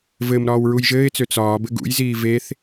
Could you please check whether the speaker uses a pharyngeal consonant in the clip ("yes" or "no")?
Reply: no